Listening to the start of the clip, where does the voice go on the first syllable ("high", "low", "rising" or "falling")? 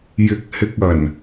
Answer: rising